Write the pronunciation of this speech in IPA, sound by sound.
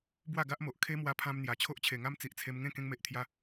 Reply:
b w a˥˧ ɡ a˦ ʔ m o˨ ʔ kʰ e˦ m w a˧ pʰ ã˧ m n̪ j a˨˩ t͡ɕʰ o˦ ʔ t͡ɕʰ e˨˩ ŋ a˦ m t͡s i˨ ʔ t͡sʰ e˧ m ŋ ẽ˥˧ k ẽ˧ ŋ m e˨ ʔ t̪ʰ j a˧

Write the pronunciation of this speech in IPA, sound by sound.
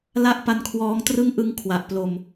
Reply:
l a˥˩ ʔ p a˦˥ n kʰ w ɔː˦˥ ŋ t r ɯ˥˩ ŋ ʔ ɯ˧ ŋ kʰ w a˨˩ ʔ p l o˧ m

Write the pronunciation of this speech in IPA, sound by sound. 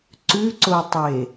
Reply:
ǀ ʉ ǀ o tˤ e

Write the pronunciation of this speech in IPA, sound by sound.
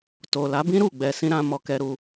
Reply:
t o˨ l a˨˦ b ĩ˦ ɾ u˦˨ ɡ͡b ɛ˧ s ĩ˦ ɾ ã˦ m ɔ˧ k ɛ˧ ɾ u˧

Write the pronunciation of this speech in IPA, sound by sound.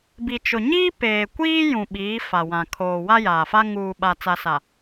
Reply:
b i˨ t͡ʃ ʊ˨ ɲ iː˦ p eː˨ kʷ iː˦ j ũ˨ ɓ iː˨˦ f a˨ w ã˨ kʰ oː˨ w a˦ j aː˨ f a˦ ŋ uː˨ ɓ a˨ t͡s a˨ s a˨

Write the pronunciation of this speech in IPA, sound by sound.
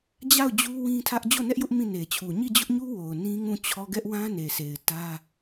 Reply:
d͡ʑ a˦˨ ʊ̯ d͡ʑ u˦ w ĩ˦ tʰ ä˦ ʔ d͡ʑ o˦˨ n ɛ˦ ʔ j ʊ˦ ʔ m ĩ˦˨ n e˨ t͡ɕʰ u˨ ɲ i˦˨ d͡ʑ ʊ˦ ʔ ɲ u˦ w o˨ ʊ̯ n ĩ˦ ŋ ũ˦˨ t͡ɕʰ ɔ˦ ɡ ɛ˦ ʔ w ã˦ n e˨ s e˨ ɪ̯ t ä˦

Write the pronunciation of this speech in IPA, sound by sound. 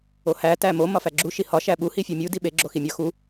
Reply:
o h æ t æ m o m ɒ f æ ɡ͡ǁ u ʃ i h ɒ ʃ æ ɓ u h i fʲ o mʲ u d i ɓ e ɡ͡ǁ o x i mʲ ɒ x u

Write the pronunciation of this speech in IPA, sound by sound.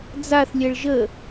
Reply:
d͡z a θ lʲ ɛ ɭ ʒ ə

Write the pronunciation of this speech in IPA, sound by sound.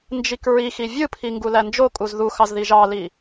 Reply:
n d͡ʒ i k ɹ i x i vʲ ɯ pʰ i ŋ ɡ u l æ n d͡ʒ o kʼ u z ð u x ɑ z ð i ʒ ɑ l i

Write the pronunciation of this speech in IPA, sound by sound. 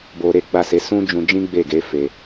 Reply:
b o˧ ɾ e˦ ɡ͡b a˦˨ s e˨˦ s ũ˦ d͡ʒ ũ˧ d͡ʒ ĩ˦ ɡ͡b e˦˨ ɡ e˨˦ f e˧

